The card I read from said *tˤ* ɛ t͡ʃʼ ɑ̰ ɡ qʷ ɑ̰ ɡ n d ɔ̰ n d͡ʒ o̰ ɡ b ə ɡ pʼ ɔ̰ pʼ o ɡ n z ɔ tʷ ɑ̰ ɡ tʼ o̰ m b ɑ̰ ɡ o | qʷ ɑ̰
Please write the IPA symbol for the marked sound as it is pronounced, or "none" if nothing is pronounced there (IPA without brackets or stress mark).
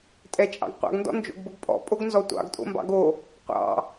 tʼ